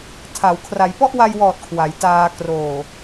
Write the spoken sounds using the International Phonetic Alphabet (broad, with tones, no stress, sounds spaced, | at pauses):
tʰ a˩˦ w kʰ r a˩˦ j p ɔ˥˩ ʔ w a˧ j w ɔː˨˩ t̚ kʰ w a˩˦ j t aː˧ k r oː˨˩